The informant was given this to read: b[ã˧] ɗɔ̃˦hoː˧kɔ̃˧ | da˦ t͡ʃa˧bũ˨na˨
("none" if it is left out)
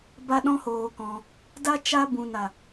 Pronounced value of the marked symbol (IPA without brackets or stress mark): a˧